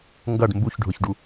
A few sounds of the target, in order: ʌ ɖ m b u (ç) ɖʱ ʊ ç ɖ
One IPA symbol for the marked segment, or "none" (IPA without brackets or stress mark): ç